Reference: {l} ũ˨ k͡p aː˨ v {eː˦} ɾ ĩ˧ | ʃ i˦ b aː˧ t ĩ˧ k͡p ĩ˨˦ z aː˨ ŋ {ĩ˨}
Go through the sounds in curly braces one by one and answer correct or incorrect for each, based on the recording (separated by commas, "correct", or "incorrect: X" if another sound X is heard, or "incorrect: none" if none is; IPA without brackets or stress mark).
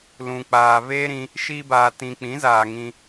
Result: correct, correct, incorrect: ĩ˧